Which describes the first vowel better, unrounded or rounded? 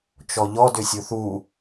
rounded